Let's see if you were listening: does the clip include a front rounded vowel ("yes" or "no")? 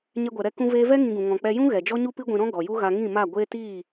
no